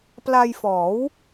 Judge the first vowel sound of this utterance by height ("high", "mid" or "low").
low